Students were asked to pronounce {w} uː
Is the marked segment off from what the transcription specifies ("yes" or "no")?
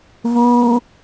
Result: yes